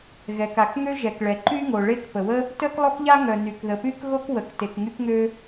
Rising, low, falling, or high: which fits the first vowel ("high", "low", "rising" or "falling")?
low